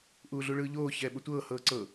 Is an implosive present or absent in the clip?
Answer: present